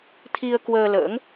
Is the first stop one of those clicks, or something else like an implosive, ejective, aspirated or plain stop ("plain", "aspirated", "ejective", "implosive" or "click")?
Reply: aspirated